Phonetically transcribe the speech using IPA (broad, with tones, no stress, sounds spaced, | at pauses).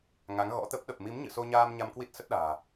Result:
ŋ a˨˦ ŋ ɣ ɔ̰˧˥ t̪ ə˦˥ p̚ ɗ ə˨˩ p̚ m i˨˦ m ɲ ɨ̰˧˨ s o˧ ɲ aː˧ m ɲ a˧ m k w i˦˥ t̚ s ə˦˥ t̚ ɗ a̤ː˨˩